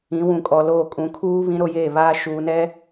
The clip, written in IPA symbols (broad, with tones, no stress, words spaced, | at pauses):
ĩ˨˦wũ˨kʼɔ˨loː˦˨ kʼũ˨kʰuː˦ βĩ˦ɾo˦jeː˦˨βaː˦ ʃuː˨nɛ˦